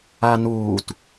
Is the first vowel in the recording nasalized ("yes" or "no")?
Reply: no